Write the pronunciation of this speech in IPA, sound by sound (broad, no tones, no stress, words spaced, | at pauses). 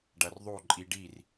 ɖɐrðˤo ǃʼiɖir